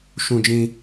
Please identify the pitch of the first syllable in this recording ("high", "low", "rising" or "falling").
high